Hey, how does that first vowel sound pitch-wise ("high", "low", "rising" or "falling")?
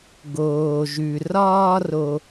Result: low